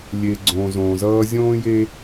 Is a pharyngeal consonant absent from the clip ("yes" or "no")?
yes